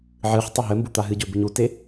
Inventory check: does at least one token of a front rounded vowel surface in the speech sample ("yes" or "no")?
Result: no